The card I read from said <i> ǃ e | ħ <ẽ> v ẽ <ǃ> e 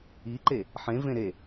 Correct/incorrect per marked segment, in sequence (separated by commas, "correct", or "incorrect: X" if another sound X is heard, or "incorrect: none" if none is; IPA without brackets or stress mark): correct, correct, incorrect: ɾ